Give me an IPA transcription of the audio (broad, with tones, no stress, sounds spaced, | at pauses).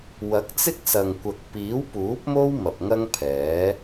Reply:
w ɐ˨˥ k̚ t͡s ɪ˥ k̚ s ɐ˨ ŋ kʷ ɐ˨ k̚ p iː˨˥ w p uː˨˥ p̚ m o˥ w m ɐ˨ p̚ ŋ ɐ˥ ŋ pʰ ɛː˨˥